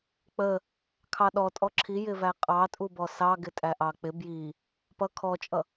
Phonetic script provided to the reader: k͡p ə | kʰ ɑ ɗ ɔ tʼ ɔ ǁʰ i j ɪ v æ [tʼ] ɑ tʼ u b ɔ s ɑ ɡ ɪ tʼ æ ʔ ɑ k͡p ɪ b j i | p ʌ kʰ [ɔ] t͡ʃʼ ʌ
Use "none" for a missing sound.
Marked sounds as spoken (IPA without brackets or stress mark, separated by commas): qʼ, ɔ